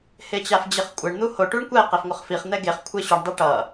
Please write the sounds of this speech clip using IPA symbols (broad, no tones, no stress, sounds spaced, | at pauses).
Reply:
h e t͡ɕ a f d͡ʑ e χ kʷʼ ɛ ɳ n̪ u h o ʈ u ɳ kʷ ɛ q ɛ f ŋʷ ʌ χ f i χ n̪ ɛ ɡ e χ kʷʰ e ɕ u ɳ dˤ ɛ ʈ ʌ